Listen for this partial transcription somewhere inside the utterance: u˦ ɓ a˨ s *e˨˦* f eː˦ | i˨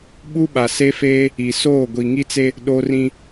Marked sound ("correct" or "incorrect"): incorrect